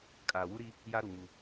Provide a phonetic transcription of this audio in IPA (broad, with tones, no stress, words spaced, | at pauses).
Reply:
kʼaː˨wu˦ɾiː˦ | ja˦ɾu˨ ŋu˦